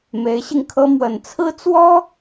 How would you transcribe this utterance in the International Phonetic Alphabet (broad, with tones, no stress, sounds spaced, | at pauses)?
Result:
m e˧˥ ɪ̯ ɕ i˧ ŋ kʰ ɤ˥ m w ə˨˩ n t͡sʰ ɹ̩˥ t͡s w ɔ˥